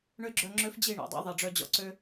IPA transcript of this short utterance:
ɳø˦ɡ͡ǁœ˧ŋ͡ǁø˦f d͡ʑi˦˨ɳɔ̰˨dˤɑ̰˦ ðˤi˨ɖ͡ʐœ˧ d͡ʑɔ̰˦ǀø˦

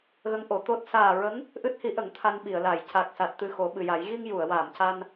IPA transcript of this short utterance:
ɣə˧˥ŋʔo˨˩˨t̪o˦˥t̚ saː˨˩ɹə˧˥ŋ | ʔɨ˦˥t̚hi˧˥ʔə˨˩˦ŋ t̪ʰa˧nɓi˨˩˨ə̯la˨˩˨j ca˨˩k̚sa˨˩t̚ t̪ɨ˧xo˨˩˦ɓɨ˨˩ja˨˩˦j ɣi˧ŋ ju˨˩˨ə̯waː˨˩˨mca˧n

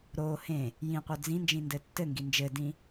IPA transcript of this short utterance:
ɾo hẽ | jĩqʷœ d͡zĩnd͡ʒĩ ndɘtːɘŋɡi nd͡ʒɘdĩ

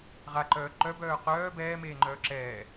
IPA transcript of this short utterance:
ʁaǃœː ǃœbœː qœː bɛːmeːŋ͡ǃœː ǁɛː

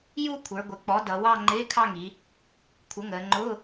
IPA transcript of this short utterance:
ju˥˧kʷʰə˞˩˧ ɡʷɪ˩˧k͡pɔ˩˥dʌ˩˧wɑ˥˧ ŋ͡ǃɪː˧˥˧kʰɑ˥˧ŋi˩˧ | kʷʰə˩˥ŋəː˩˧ŋ͡ǃʊː˧˥˧

